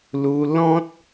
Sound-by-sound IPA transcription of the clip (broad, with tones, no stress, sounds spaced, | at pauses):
l u˧ l ɔ̃˦ t̚